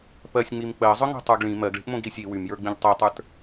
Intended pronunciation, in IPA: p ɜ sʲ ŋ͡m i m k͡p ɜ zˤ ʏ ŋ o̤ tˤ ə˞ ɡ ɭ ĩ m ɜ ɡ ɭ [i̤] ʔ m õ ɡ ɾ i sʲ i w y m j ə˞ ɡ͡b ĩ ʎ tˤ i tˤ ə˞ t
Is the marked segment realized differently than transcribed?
no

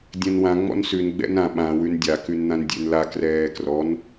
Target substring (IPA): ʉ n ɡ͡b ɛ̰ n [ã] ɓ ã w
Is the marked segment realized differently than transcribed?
no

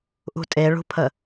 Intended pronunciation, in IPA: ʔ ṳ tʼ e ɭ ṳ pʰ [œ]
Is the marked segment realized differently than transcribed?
yes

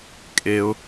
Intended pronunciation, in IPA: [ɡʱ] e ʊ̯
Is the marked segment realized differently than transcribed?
yes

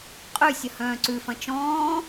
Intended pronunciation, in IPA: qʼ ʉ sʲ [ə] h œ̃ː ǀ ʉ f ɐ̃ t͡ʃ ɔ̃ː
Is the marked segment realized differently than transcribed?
no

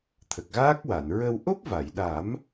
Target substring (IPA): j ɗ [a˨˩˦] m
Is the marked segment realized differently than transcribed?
no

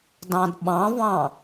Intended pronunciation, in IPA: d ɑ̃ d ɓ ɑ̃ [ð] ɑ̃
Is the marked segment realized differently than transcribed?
yes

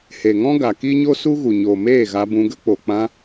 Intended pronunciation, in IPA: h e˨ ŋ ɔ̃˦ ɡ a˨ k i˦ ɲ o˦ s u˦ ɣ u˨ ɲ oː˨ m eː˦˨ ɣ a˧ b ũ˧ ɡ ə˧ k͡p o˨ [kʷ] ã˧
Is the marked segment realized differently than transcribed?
yes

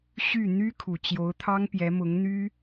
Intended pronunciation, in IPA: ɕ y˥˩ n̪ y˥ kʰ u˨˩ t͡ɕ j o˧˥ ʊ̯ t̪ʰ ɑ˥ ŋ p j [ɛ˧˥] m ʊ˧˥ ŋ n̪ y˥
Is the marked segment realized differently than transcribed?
no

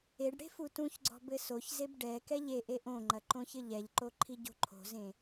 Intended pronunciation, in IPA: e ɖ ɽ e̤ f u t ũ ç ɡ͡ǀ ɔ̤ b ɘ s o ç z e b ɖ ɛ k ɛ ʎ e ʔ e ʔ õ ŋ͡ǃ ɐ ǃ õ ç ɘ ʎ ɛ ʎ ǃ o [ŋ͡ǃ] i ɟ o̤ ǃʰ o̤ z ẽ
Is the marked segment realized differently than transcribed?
yes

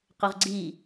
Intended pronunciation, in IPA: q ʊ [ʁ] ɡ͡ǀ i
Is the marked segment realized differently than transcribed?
no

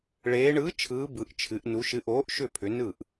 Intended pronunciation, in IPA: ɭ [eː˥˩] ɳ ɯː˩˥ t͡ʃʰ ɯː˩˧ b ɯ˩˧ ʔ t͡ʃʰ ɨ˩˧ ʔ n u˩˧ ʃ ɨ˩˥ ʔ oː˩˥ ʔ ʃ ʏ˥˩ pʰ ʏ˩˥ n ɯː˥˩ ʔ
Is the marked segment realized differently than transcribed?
yes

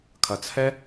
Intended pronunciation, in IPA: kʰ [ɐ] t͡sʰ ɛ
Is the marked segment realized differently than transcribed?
no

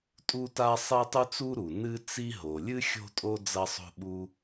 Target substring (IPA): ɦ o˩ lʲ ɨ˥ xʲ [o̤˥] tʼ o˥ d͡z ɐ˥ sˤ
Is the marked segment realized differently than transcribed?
no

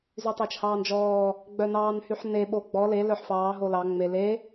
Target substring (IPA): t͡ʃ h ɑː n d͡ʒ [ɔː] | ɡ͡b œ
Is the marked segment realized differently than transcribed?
no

